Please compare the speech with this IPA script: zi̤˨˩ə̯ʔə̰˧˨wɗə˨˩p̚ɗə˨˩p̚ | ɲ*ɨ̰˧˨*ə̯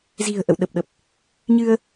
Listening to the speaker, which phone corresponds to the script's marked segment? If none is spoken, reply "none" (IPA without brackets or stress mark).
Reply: ɨ˧